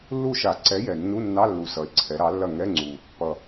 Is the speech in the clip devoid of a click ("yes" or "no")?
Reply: no